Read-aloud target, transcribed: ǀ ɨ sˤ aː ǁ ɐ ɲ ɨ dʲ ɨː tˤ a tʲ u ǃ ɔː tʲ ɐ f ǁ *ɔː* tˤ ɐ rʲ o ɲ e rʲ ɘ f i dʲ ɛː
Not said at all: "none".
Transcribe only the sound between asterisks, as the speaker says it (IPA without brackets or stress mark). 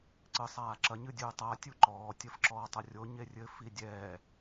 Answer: ɔː